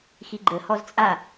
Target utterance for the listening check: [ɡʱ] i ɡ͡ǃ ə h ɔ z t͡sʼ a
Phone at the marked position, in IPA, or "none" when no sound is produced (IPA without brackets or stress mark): x